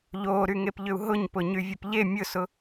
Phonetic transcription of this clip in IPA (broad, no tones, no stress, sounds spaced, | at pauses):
ʎ o ɾ y ŋ e p ʎ ʏ u̯ ɦ ʊ ɲ p ʊ ɲ y vʲ ʊ p ʎ e mʲ ʊ s ʊ